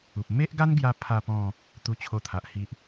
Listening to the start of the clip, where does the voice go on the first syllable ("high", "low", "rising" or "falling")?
low